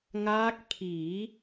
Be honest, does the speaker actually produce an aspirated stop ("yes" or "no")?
yes